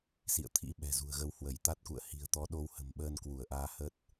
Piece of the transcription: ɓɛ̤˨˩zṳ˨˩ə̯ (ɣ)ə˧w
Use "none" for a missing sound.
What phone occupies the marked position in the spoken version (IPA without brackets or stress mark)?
ɣ